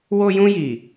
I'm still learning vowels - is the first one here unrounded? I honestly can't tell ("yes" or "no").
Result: no